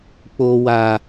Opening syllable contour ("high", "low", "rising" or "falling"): low